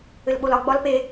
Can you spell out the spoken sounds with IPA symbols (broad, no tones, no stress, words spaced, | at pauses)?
ɘlɓolɒ ɡ͡bɒlpe